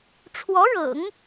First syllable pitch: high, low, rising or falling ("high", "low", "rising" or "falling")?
rising